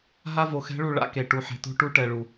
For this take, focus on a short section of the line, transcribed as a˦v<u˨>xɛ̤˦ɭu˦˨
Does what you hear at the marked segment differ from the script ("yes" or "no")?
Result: yes